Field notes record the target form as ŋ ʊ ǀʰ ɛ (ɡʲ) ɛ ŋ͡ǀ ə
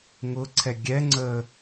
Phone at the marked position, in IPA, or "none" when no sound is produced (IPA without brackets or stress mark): ɡʲ